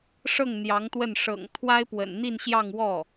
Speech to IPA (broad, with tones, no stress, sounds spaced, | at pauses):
ʂ ɤ˥˩ ŋ n̪ j ɑ˧˥ ŋ t̪ w ə˥˩ n ʂ ɤ̰˨˩ ŋ t̪ʰ w a˥ ɪ̯ p w ə̰˨˩ n n̪ i˥˧ n ɕ j ɑ˥˧ ŋ w ɔ˥˩